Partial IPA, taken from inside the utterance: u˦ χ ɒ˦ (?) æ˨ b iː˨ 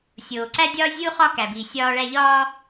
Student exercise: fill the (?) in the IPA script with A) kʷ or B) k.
B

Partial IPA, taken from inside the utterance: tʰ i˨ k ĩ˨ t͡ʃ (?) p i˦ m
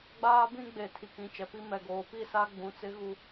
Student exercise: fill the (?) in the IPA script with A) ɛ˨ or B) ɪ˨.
A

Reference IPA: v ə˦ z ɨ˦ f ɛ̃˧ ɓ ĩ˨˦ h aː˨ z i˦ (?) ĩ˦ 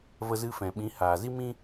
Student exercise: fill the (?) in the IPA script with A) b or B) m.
B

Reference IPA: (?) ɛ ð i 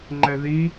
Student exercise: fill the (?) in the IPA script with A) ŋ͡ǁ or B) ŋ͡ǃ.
B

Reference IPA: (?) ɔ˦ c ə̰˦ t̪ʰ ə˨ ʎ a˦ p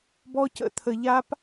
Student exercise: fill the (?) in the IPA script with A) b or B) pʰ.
A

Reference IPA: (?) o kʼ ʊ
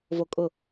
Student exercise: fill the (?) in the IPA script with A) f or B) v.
B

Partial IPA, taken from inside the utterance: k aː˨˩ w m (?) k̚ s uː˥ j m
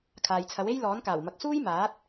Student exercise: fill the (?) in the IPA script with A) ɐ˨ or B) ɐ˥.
A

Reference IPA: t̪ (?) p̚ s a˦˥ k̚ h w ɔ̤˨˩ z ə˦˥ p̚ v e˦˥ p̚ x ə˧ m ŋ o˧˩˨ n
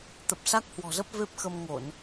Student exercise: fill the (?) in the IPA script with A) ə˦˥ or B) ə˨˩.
B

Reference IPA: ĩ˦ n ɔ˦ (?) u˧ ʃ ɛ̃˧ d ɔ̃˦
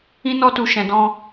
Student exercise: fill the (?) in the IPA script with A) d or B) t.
B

